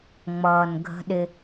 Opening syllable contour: low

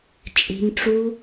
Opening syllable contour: low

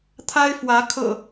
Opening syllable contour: high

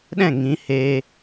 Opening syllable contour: falling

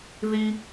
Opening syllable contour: low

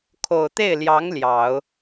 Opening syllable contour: low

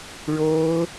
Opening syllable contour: high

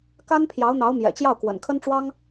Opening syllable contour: high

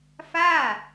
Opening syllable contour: falling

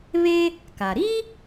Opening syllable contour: high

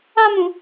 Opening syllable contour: high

